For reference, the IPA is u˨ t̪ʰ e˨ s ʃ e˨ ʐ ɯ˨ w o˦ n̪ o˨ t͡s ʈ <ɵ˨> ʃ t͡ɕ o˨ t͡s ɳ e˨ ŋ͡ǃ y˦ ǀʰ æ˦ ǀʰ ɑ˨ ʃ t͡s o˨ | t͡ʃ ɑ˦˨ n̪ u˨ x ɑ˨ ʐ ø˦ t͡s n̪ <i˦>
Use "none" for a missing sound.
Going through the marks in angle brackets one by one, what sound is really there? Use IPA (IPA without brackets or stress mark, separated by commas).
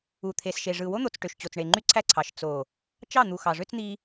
ø˨, i˦